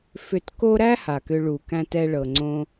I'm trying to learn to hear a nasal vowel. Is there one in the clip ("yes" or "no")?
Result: yes